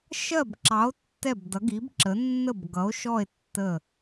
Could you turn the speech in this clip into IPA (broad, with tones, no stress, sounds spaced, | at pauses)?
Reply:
ʃ ɜ˦˨ b ǁ ɑ˨˦ o̯ tː ɛ˦˨ b d ʌ˨˦ ɡ i˨˦ b ǁ ə˨˦ nː ə˦˨ b ɡ ʌ˨˦ o̯ ʃ ɔ˦˨ e̯ tː ə˦˨